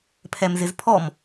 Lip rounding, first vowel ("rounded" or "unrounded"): unrounded